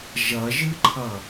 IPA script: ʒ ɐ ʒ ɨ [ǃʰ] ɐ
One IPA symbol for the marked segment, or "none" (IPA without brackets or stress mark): ǃʰ